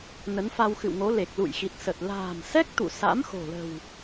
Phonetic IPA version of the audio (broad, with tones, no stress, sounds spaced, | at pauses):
n ə˨˦ n f a˧ w x ɨ̰˧˨ w ŋ o˨˦ l e˨˩ k̚ l ṵ˧˨ j x i˨˩ t̚ s ə˨˩ t̚ l a̤ː˨˩ m s ɛ˦˥ k̚ t̪ ṵ˧˨ s a̰˧˥ m x o̤˨˩ l ə̤˨˩ w